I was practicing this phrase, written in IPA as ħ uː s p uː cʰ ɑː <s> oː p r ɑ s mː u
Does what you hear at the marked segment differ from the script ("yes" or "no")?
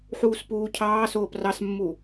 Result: no